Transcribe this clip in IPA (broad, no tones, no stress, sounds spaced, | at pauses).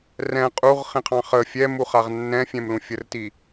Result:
r ɛ̃ qʼ u ʁ χ ĩ qʰ ɑ̃ χ ə fʲ ɛ m u χ a ʁ nː ɛ̃ fʲ ɛ̃ m l ũ fʲ ə r t i